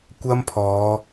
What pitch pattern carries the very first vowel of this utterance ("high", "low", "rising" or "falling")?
high